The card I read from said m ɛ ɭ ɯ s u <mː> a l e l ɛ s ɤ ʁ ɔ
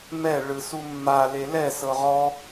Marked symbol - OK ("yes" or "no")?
yes